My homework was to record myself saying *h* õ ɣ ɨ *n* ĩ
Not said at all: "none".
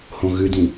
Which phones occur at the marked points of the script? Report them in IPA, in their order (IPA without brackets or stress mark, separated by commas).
h, d